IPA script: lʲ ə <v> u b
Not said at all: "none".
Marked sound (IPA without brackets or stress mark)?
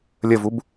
v